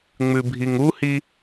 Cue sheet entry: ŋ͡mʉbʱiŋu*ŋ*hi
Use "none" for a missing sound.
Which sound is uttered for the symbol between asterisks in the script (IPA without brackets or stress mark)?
none